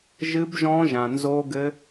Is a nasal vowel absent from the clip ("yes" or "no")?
no